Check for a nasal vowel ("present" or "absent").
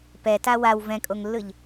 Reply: present